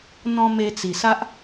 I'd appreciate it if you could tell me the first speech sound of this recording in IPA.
n̪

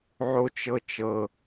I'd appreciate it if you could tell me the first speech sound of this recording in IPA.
ʕ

